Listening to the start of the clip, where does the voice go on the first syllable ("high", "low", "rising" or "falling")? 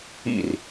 falling